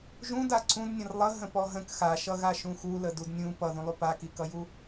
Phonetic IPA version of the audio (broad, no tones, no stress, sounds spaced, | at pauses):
ʒ ũ d a ǀʰ ũ d nʲ ə̃ r lˠ ə ɦ ə̃ p ɔ ɦ ə̃ k x a ʃ ʌ ɣ a ʃ ũ x u l ə d u d nʲ ũ p ʌ ð ũ lˠ u p a k i k ʌ j u